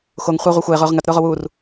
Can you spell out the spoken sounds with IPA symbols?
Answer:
xoŋ χʷɐo̯ ʁʷœxʷɐːe̯ ʁʊːʁŋɐt ɾʊːʁowuːr

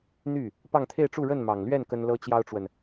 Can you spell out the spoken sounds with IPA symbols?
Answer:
n̪y˥˩ | pɑ˥˧ŋt̪ʰe˥˧ɪ̯ʈ͡ʂu˥˧ ɻə˥˩nmɑ˨˩ŋlɥɛ˥˩n kə˥nlɤ˥t͡ɕjɑ˥ʊ̯ʈ͡ʂwə˨n

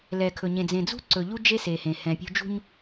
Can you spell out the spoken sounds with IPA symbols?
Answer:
lɛ˨kʰɵ˨ɲẽ˨ d͡zẽ˨d͡zṳ˦ǀɵ˨ ʎu˦d͡ʒe˦se˨hẽ˨ hɛ̃˨pʲṳ˦ d͡ʒṳ˦ɲ

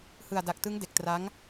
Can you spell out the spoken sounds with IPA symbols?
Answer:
hɯ˨˩a̯da˨˩k̚tɯ˦˥ŋ de˨˩k̚tra˦˥ŋ

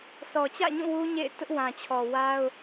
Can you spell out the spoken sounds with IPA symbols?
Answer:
sɔ˨t͡ɕä̰˦˨ɲũ˦˨ wu˦ɲḛ˦˨ɪ̯tʊ˦ʔ wã˨t͡ɕʰɔ˨ wa˦ʊ̯

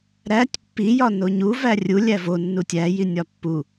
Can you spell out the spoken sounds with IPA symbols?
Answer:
ɾætʲ pːijɒ noɲu værʲu lʲævo nːutʲæjinʲɒ pːu

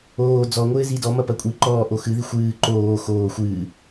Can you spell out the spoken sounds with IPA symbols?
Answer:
oː d͡zɔŋʷɘːzi dɔmɐpɐ kʷʼi ǃɔːʔo xɨði xʷɨː ǃoː xoː xʷɨː

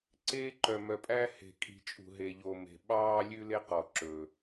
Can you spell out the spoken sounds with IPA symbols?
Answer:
ǀeː˦ǃœ˨mœ˨pʼæ˦ he̤˨kʼi̤˨ t͡ʃʼṳ˨ɦe˨ʎo˨ me̤˨ ɓɑː˦lʲʉ˦le˦ qɔ˨ ǁɵ˨

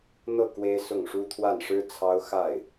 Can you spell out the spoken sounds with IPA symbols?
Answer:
n̪ɤ˥˩ kwe˥ɪ̯ sʊ˥˩ŋʂu˥ t̪ʰwa˥˩nʂɻ̩˥ t͡sʰɑ˥ʊ̯ xa˥˩ɪ̯

